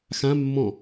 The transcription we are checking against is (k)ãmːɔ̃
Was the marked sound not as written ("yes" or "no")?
yes